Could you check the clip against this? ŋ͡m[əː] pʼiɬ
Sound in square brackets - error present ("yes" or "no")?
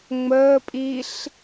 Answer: no